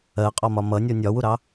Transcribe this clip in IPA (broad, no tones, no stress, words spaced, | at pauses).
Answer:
ɜqʼɒmɒ mʌnʲɔ nʲɒwuɾɑ